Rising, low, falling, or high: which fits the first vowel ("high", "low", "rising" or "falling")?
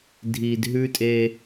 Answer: low